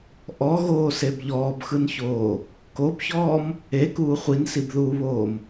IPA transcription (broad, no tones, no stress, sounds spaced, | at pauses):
ʔ ɔ ɣ oː s e b ʎ ɔː b x ɯ n ç oː | k o b ç ɔː m | e k uː χʷ i n s i b ð uː β oː m